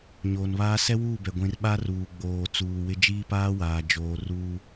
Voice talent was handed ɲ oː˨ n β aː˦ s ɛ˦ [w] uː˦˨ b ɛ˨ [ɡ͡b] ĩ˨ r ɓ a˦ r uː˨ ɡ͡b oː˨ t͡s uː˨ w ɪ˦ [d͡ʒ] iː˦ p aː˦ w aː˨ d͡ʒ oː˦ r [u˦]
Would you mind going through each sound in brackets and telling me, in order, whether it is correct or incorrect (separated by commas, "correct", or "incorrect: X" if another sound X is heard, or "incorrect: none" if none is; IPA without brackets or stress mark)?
correct, incorrect: ɡʷ, correct, incorrect: uː˦